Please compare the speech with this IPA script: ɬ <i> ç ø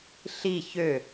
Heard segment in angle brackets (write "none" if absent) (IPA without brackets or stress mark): i